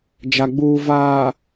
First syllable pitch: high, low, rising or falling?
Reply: low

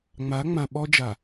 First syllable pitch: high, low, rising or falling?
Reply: rising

